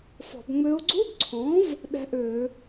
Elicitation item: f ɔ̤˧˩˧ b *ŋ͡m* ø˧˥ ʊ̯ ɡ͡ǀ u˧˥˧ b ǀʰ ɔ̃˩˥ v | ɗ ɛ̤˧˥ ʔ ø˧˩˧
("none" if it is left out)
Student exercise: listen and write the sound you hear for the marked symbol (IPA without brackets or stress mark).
ŋ͡m